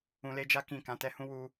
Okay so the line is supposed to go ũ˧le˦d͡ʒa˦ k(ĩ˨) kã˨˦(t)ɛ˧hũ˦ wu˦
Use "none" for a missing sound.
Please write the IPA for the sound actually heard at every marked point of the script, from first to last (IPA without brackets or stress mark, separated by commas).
ĩ˦˨, t